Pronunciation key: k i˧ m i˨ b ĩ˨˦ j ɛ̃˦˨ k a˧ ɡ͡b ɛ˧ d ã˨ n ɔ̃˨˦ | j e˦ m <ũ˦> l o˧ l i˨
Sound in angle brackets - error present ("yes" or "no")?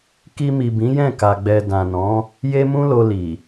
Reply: no